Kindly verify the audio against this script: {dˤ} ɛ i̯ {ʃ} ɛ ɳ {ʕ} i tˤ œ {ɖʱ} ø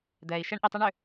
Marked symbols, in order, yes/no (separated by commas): no, yes, no, no